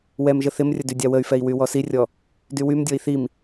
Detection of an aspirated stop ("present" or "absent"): absent